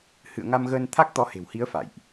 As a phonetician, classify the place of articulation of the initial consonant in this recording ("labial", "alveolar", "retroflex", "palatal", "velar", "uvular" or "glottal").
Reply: glottal